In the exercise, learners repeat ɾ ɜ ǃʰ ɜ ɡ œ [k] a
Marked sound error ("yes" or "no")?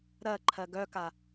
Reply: no